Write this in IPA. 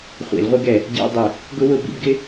χʷ ḭ˧˩˧ l ʁʷ ɪ˦˥ ɡ ɛ˧˩˧ | ɟ ḭ˧˥˧ dˤ ɪ˧˩˧ | ɡ ʊ˦˥ w ʊ˧˥˧ b ḭ˥˧ b ɡ ɪ˦˥

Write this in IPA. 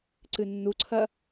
ǀ ɨ nː u ǀʰ ɐ

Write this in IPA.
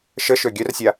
ʃ ə ʃ ø ɡʲ œ r sʲ a

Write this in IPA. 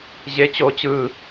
ʑ e t͡ɕ o t͡ɕ ɯ

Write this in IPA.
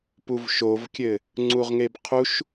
p u v ʃ o v kʲ ɘ | ŋ͡ǀ u ʁ ŋ e b qʰ u ʃ

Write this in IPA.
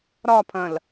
ɾ ɒ pʰ ɐ̃ l

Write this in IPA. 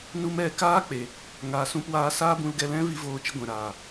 n u˧ m ɛ˧ k aː˦ k͡p e˨ | ŋ aː˧ s ũ˦ p w aː˦ s aː˦ b ũ˧ l ɡ ɛ˧ l ɛ̃˦ v i˧ v oː˧ t͡ʃ ə˧ ɡʷ ɛ̃˨ ɾ aː˨

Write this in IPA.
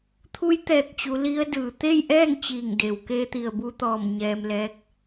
t̪ʰ u˧˥ j t̪ ɛː˧˩ k̚ t͡ɕ u˩˧ l i˧˥ ə̯ d ɯː˩ t̪ e˥˨ j ʔ ɛː˥˨ ŋ t͡ɕ iː˧˩ ŋ d e˩ w k eː˧ t̪ i˩ ə̯ b u˧ t̪ ɔː˧˩ m ɲ ɛː˧ m l ɛː˧˥ k̚

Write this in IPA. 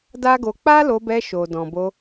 d a˦ ɡ o˧ k͡p a˦ l o˧ b ɛ˧ ʃ o˨ d ɔ̃˨ b o˧

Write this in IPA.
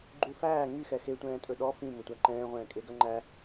ɡ͡ǃ u f æː ŋ y x ɛ x e tʷ ɛ̃ː tʼ ɵ ɗ ɔ f ĩ m ɵ tʷ æ ǃ ɛ̃ː ʁʷ ɛ̃ː kʼ e ɡ œ ŋ͡ǃ æ

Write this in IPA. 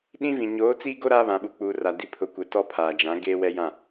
ɗ ĩ˦ v ĩ˨ ɲ oː˨˦ t͡s iː˦ ɡ o˦ ɾ aː˦ β ã˨ ɓ u˨ k͡p uː˨ r a˨ d i˨˦ pʰ ʊ˨˦ kʷ ɛ˨ t ɔ˦ pʰ aː˨ d͡ʒ ã˨˦ ɡ eː˦ w ɛ˦ j ã˦˨

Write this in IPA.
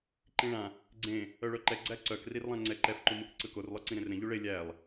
ǃ ĩ ɭ ã | ɡ͡ǀ ẽ | œ ɭ œ ǃ ɛ ɡ͡ǀ æ ǀ œ k r i r lˠ ã ŋ͡ǀ ɛ ǃ ɛ f ǃ u m ɯ k ǀ ɯ k o r lˠ œ ǀ ĩ ɾ ẽ r ɾ ẽ ʎ u ɭ e lʲ æ lˠ

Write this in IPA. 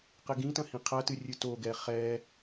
q ɘ ɡ ĩ t ɐ̃ h ĩ qʰ ɐ t ɨ rʲ ɨ t o ɡ ɛ χ ɛ

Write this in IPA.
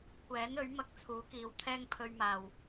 kʷ ɛː˨˥ n ɵ˨˥ ɥ m ɐ˧ k̚ t͡sʰ uː˨˥ k iː˨˧ w t̪ʰ ɛː˥ ŋ pʰ ɵ˧ ɥ m aː˨˩ w

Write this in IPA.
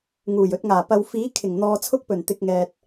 ŋ uː˨˩ j ɵ˨ t̚ ŋ aː˨˩ p ɐ˨ w f iː˨˥ kʰ ɪ˨˩ ŋ n̪ ɔː˨ t͡sʰ ʊ˧ k̚ p ɵ˨˩ n t̪ ɪ˨ k̚ ŋ ɛː˨ t̚

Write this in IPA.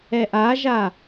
ɛ ʔ a ʒ a

